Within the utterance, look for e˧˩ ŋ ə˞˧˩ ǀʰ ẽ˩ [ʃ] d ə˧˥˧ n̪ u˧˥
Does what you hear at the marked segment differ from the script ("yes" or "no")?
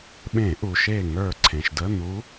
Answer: no